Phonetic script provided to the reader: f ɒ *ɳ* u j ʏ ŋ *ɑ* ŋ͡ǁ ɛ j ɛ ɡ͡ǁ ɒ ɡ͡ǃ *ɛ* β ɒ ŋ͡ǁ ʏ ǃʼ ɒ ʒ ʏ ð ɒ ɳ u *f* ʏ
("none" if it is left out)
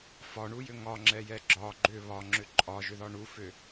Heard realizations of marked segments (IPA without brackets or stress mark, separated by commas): ɳ, ɒ, ʏ, f